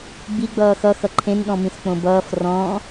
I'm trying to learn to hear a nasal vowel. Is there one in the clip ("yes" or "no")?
yes